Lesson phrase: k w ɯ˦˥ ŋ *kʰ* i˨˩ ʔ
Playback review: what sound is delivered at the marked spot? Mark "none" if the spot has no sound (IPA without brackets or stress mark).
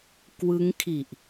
kʰ